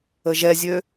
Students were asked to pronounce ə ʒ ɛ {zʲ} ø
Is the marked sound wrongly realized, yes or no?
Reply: no